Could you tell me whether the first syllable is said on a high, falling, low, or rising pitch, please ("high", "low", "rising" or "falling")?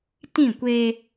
falling